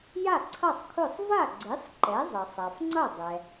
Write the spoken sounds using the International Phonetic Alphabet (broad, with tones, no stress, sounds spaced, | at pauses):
j a˥˩ ǀʰ ʌ˥˩ sˤ kʰ ʊ˥˩ sˤ v a˥˩ ɡ͡ǀ i˩˥ sˤ ǃ ɛ˩˥ zˤ ʌ˩ sˤ a˩ f ŋ͡ǀ ʌ˥˩ dˤ ɛ˩